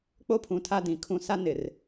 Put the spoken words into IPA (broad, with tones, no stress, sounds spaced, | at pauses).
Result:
k͡p o˦ pʰ ũ˨ tʰ a˦ d ĩ˨ kʰ ũ˦ s a˦ n ɪ˨ r